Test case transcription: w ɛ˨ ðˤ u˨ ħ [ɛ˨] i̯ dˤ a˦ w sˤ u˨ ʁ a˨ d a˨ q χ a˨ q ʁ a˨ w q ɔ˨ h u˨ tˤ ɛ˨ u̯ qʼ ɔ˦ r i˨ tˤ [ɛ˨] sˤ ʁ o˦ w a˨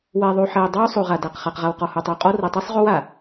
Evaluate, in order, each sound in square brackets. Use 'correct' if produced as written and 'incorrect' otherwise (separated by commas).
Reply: correct, incorrect